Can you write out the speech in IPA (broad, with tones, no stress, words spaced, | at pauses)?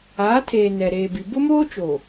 aː˨˦tʰeː˨ nɛ˨ ɾeː˨bi˨ bʊ˦moː˦t͡ʃo˨